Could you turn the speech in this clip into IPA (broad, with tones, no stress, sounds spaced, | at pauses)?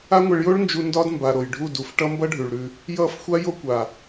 a˦ ŋʷ e˧ ɭ j o˦ ɭ n d͡ʒ u˧ n d ɒ˦ d m b a˨ ɾ o˨ j ɖʱ u˦˨ d u˨ f ʈ ʌ˦ m b ʌ˦ ɖʱ ʉ˨ ɭ ɾ ʉ˧ | j ʌ˦˨ f xʷ a˦ j o˧ kʷ a˨